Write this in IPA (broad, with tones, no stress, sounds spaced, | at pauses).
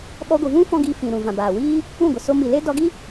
ɓ ɔ˧ ɡʷ ɨ˨ v ũ˦ f ɔ̃˦ ɡ i˧ f ĩ˨ ɾ ũ˨ v ã˨ b aː˨ w iː˦ | ũ˦˨ ɡʷ ə˨ s o˧ m i˨ l e˦ d ɔ˧ ɡ i˦